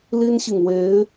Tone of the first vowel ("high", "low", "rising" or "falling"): high